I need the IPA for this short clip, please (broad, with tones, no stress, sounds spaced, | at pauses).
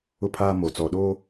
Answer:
ʊ˦ pʰ aː˦ m o˨ t͡s ɔ˨ ɗ oː˦